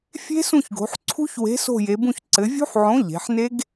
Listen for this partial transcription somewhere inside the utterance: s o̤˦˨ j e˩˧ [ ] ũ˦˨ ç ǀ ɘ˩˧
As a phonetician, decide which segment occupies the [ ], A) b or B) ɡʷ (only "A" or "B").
A